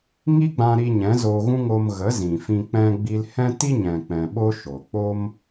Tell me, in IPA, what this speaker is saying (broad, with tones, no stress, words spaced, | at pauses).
ŋi˦ɡ͡bã˧ɾi˧ ɲɛ̃˨˦zoː˧ɣũ˦ŋo˧m ɣə˨˦ zĩ˨fĩ˧ k͡pɛ̃˧ ɡ͡bi˧lhɛ̃˦ ti˦ɲɛ̃˨ k͡pɛ̃˨ɓo˦ ʃo˨ k͡po˦m